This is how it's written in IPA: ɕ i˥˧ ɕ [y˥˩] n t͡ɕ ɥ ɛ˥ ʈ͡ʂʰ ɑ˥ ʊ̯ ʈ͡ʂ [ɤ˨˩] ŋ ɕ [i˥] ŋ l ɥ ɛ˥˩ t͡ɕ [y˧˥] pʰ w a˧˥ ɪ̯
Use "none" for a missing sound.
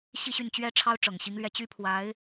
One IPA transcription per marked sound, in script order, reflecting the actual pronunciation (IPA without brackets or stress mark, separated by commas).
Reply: y˥˩, ɤ˨˩, i˧˥, y˥